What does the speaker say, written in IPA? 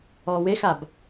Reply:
ɔː w e x a b

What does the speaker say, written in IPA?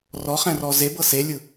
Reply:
r ɔ χ ɛ̃ r ɔ z e b ɤ s e lʲ ɯ

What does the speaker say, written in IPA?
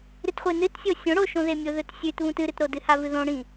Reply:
ɾ ɨ t χʷ e n ɨ t sʲ o sʲ õ ɽ o ʃ õ ð e mʲ o ð ɵ t sʲ ʉ t β ũ t ɨ ɾ ɨ t ɾ o d ɨ h a v ɨ ð õ ɽ ĩ

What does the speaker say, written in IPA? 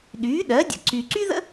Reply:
ɗ yː˩˥ ɗ ɜ˩˥ dʲ ə̰˨ ǀ y˨ ǀ y˥ ð ə̰˥

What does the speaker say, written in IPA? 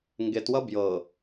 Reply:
ŋ ɡ e t w ʌ b j ɤ

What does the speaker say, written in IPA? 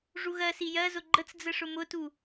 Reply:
ʐ u ɣ ɜ s i j ɜ z ʊ ɡ͡ǃ ə t͡s d͡z ə ʂ ʊ m ʊ t u

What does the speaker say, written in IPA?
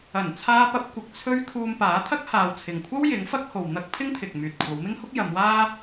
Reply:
ɐ˨˩ n t͡sʰ aː˧ p ɐ˧ p̚ kʷ ɪ˧ k̚ t͡sʰ ɵ˥ ɥ kʰ uː˧ m p aː˨˥ t̪ʰ ɐ˥ k̚ h aː˨ w t͡sʰ ɪ˨ ŋ kʷʰ ɐ˥ w j ɪ˨˥ ŋ f ɐ˥ k̚ h o˨ w n̪ ɐ˥ k̚ pʰ ɪ˥ ŋ t̪ʰ ɪ˨ k̚ m yː˨ t̚ kʷʰ ɐ˨˧ w m ɪ˥ ŋ h ʊ˥ k̚ j ɐ˨˧ m w aː˥

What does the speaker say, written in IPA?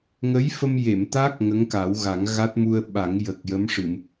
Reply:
ŋ ə˧˥ j f ə˧ m j e˨˩˨ m t̪ a˦˥ k̚ ŋ ə˧˥ ŋ k a˨˩˦ w ɣ a˨˩˦ ŋ ɣ a˦˥ t̚ m u˧ ə̯ ɓ a˨˩˦ ŋ j ə˨˩ k̚ j ə˧˥ m ʂ ɨ˨˩˨ m

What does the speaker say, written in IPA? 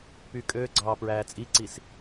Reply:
p yː kʼ øː ɡ͡ǀ ɑː p ɹ æː t͡sʼ i ǀ i s

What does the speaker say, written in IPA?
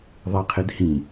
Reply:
ðˤ e qʰ ɪ d h ĩ

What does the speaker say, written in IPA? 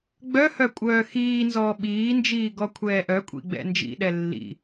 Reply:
ɡ͡b œ h œ kʷʼ œː x iː n z ɔː ɓ iː n d͡ʒ iː ɡ ɔ kʷʰ ɛː ʔ œ kʷʼ ḭ ɡ͡b ɛ̰ n d͡ʒ ḭ ɗ ɛ lː ḭ

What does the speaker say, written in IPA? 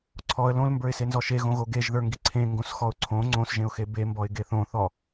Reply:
ǀʰ ɔ ə̯ l õ l m b ə˞ ɪ̯ s e n z ɔ ʃ e ɣ õ ɣ o ɡ e ʒ ð ə˞ ŋ ɡ i ǀʰ ẽ ŋ ɡ õ s x ɔ ʊ̯ ǀʰ õ ŋ͡ǀ õ s ʒ ẽ ʊ̯ x e b e m b ɔ ɪ̯ ɡ e θ õ θ ɔ

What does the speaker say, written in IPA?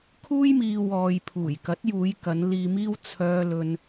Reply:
kʰ uː˥ j m iː˧ w ɔː˨ j pʰ uː˨˩ j k ɐ˨˥ t̚ j uː˨˧ j k ɐ˨˧ n l iː˧ m iː˥ w t͡sʰ œː˧ l ɵ˧ n

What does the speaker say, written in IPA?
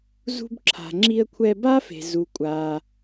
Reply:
z ṳ˧ b ǁʰ a̤˩ ŋ͡ǁ i˧ ə̯ kʷʰ ɛ˧ b aː˥ f e̤˩ z u˩ kʷʼ aː˩

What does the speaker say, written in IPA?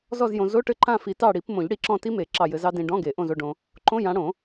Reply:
z ɔ˦˨ z j õ˨ z o˧˥˧ ʈ ɘ˦˨ ǃ ã˦˨ f i˨˩˦ t ɑ˦˨ ɽ i˨˩˦ p m õ˨˩˦ ʎ ɽ i˨˦ ǁ ɔ̃˦˨ t i˦˥ m e˨˩˦ ǁ ɑ˦˨ j ɘ˨˦ z ɑ˦˥ d ĩ˨ ɖ ɔ̃˧˥˧ ɡ e˨˩˦ ʔ õ˦˨ z o˦˨ ɖ õ˨ | ǃ õ˧˥˧ j ã˨˦ ɽ õ˨˩˦

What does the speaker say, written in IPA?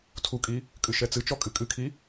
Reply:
tʰ u kʼ i | kʼ ɨ ʃ ɛ t͡s ɨ t͡ʃ ɔ kʼ ɨ kʼ ɨ kʰ i

